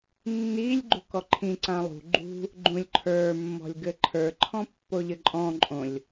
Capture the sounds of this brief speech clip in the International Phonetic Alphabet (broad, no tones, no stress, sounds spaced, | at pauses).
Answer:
nː i lʲ ɡ͡ǃ ṳ k ɔ ǃʰ ĩ ǀ ã lˠ ṳ ɡ͡ǃ ṳ | ɡ͡ǃ ũ lʲ ǃʰ ə˞ mː ɔ̤ lʲ ɡ ɘ ǃʰ ə˞ ǃʰ ɔ̃ pː o ʎ ɘ ǃʼ ɔ̃ ǃʼ õ lʲ